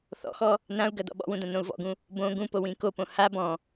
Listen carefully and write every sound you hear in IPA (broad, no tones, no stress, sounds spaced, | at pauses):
θ ɔ̰ x ɔ | n ã u̯ ɡ ɐ d ɔ̰ ɓ ɔ̰ w ũ d ɐ̃ n õ u̯ v ɔ̰ ɡ ũ | b õ ɡ ũ p o w ĩ k o p õ h a b ɔ̃